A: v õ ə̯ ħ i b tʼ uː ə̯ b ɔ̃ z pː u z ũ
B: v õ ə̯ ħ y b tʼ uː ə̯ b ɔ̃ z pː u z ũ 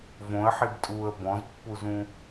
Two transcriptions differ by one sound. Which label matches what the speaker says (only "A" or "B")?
A